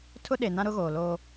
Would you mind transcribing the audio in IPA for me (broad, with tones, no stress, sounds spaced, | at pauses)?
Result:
tʰ ʊ˦ ɗ e˨ n ã˦ ɾ ʊ˦ ɣ oː˨ l oː˦